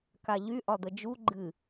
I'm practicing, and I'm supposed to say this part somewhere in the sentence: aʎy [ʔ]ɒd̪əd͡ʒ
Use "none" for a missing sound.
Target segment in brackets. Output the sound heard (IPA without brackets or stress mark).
ʔ